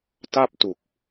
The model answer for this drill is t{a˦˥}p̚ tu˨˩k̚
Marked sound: incorrect: a˥˩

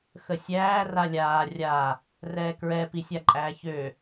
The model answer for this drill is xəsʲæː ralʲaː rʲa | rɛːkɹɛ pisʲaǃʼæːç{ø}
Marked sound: correct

